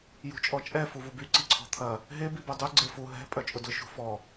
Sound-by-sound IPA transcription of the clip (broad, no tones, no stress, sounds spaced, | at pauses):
j ṳ t͡ʃʼ ɔ t͡ʃʼ ɛ f u v u b y ǀ i ǀʰ ɔ̤ t̪ʰ ɐ | ɦ e b i b œ dˤ u ɡ͡ǀ e f u ɦ ɛ̤ pʼ œ t͡ʃʼ ʊ d ʊ ʃ ṳ f ɔ